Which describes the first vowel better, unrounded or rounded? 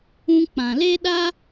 rounded